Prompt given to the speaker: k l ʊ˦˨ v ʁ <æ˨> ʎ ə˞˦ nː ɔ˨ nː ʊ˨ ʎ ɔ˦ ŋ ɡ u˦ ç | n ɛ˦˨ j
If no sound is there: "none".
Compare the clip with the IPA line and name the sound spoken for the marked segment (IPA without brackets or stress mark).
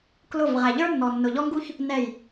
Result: æ˨